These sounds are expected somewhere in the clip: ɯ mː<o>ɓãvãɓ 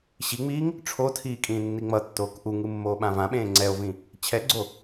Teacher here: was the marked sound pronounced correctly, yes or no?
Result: no